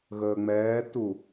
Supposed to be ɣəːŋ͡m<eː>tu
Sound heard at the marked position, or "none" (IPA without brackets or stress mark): ɛː